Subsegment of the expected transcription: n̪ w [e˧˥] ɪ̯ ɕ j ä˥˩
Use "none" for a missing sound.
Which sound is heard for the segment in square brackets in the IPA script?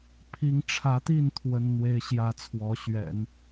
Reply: e˥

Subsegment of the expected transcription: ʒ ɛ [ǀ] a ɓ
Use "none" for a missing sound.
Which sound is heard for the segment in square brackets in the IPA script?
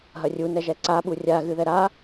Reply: ǀ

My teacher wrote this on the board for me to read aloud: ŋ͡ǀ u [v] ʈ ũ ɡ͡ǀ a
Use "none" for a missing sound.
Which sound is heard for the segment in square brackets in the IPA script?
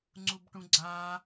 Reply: b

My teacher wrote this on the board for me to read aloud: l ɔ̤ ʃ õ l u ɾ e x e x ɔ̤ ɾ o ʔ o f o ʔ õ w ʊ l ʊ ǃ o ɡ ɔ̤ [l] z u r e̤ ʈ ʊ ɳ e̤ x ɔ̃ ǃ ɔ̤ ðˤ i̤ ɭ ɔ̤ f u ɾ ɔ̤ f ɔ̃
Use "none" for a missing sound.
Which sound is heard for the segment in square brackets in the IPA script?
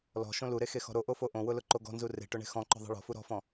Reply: n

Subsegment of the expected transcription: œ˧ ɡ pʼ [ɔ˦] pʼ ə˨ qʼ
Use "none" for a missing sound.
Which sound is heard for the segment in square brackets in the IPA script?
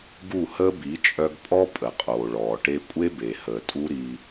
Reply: ɔ˦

